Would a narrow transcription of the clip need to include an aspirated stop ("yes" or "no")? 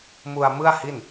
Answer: no